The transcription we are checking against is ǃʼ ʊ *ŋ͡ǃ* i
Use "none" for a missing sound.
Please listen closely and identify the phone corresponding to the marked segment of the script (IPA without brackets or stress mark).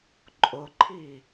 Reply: ǃʰ